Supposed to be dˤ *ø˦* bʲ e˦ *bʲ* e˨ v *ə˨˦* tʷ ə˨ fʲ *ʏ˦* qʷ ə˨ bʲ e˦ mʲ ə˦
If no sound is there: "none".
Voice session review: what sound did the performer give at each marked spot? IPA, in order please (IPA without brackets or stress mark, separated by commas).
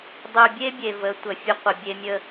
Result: ø˨, bʲ, ə˨˦, ə˦